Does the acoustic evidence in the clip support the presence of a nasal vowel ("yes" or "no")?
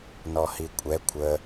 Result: no